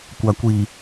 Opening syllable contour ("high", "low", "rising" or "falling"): low